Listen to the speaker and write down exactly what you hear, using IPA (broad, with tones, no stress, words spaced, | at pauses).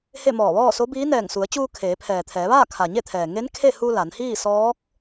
he˥˨mɔː˧˩ʋɔː˥˨ so˧˥biː˧˥ nɛː˧˩ŋsu˩˧ə̯t͡ɕuː˧ kʰeː˩˧pʰɛː˩t̪ʰɛː˩˧ʋaː˥˨ kʰa˩ɲe˥˨t̪ʰɛː˩ ŋe˧˥n kʰe˥˨hu˧ la˩˧nhiː˥˨sɔː˧˥k̚